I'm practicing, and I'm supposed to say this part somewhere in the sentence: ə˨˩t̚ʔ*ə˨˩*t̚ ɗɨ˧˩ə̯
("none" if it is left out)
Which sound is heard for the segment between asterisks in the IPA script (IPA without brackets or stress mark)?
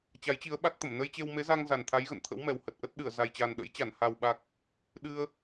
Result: ə˦˥